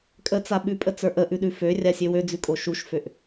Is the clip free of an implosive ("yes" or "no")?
no